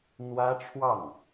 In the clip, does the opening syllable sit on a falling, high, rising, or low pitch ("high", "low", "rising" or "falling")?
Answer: high